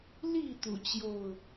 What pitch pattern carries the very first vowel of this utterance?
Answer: falling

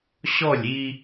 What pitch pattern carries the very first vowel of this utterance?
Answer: falling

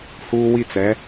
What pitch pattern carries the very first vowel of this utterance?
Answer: high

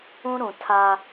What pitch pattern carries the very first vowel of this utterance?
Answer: high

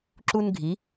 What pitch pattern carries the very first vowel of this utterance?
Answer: high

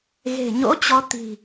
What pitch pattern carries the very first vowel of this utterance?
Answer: low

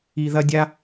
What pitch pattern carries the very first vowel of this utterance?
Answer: low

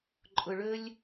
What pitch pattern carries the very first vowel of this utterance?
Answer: low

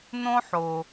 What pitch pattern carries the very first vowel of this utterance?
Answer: high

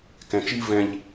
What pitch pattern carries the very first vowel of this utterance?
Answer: low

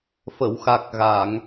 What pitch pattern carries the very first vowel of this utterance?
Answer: low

